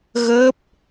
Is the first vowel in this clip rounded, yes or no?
no